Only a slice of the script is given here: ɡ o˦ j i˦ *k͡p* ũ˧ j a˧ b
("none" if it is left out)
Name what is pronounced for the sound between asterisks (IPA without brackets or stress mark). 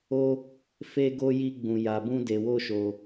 ɡ͡b